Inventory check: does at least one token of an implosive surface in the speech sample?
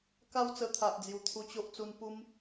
no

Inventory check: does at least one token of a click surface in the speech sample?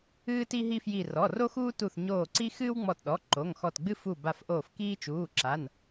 yes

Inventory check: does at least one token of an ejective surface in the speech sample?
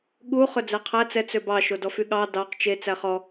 no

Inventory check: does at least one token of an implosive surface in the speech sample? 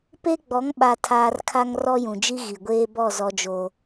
yes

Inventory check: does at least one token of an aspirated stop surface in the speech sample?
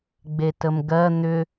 no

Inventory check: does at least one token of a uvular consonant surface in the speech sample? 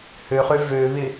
yes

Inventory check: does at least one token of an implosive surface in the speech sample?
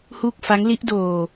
no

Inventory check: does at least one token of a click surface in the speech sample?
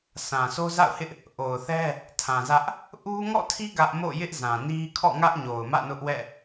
no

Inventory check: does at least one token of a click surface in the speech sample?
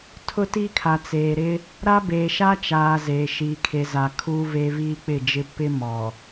no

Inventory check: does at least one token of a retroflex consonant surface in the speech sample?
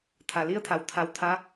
no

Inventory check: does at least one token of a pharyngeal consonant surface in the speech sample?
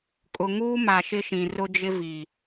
no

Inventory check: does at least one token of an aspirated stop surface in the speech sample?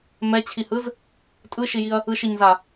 yes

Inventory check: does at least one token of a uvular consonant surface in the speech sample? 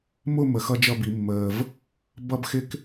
no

